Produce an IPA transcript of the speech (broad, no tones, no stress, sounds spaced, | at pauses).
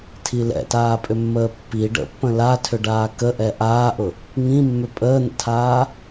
tʰ i l ɛ̰ t aː pʼ ʏ mː əː pː i ɖ ə̰ pː ə̃ l a tʰ ʏ ɖ aː k ə ʔ ɛ ʔ aː ʔ ʊ | ŋ ĩ mː ʏ pʼ əː n̪ ə̰ tʰ aː